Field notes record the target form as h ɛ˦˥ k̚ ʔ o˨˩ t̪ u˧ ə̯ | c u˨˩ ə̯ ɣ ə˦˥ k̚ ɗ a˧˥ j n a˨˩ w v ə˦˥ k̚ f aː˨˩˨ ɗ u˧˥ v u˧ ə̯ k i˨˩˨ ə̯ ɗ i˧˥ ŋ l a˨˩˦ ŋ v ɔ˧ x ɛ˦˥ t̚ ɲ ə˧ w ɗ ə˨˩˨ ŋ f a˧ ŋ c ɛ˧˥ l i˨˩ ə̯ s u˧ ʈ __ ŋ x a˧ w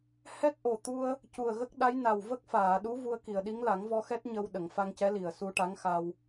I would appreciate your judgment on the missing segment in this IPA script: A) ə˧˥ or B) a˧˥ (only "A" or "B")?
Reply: B